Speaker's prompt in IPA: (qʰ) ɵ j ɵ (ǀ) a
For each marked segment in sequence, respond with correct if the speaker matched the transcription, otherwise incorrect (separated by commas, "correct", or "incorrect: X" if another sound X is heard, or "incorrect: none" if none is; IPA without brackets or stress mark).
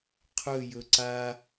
correct, correct